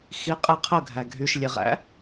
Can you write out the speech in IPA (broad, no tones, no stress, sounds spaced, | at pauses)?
x i qʼ ɪ qʰ ə ɡʱ æ ɡʱ y ʃ lʲ e ʁ æ̰